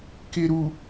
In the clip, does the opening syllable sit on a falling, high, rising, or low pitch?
low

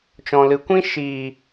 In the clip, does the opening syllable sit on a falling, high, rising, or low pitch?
low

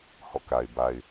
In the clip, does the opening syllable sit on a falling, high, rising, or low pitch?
falling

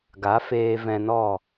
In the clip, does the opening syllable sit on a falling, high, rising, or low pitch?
rising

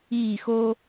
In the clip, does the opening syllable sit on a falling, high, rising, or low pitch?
falling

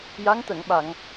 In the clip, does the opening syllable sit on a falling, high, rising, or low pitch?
rising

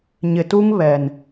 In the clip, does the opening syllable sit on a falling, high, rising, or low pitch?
low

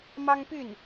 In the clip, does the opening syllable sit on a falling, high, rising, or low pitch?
high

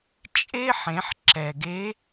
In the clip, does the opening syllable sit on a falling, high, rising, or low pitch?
high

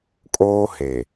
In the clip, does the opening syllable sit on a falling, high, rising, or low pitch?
high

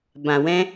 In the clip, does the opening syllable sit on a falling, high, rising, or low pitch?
low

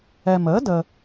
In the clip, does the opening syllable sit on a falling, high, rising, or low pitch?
low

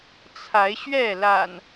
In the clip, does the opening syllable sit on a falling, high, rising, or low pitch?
rising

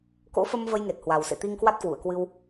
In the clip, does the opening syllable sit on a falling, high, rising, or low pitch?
rising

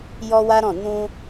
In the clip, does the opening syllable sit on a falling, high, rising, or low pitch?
high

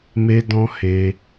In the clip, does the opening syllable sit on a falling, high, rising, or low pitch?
high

